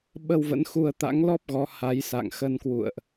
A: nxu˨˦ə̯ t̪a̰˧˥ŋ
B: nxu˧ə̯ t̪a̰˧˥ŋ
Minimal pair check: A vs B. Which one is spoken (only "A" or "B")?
B